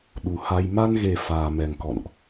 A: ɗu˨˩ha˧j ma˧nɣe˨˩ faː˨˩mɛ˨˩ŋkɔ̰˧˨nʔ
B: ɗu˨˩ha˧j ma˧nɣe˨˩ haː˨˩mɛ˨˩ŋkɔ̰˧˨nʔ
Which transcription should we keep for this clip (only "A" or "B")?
A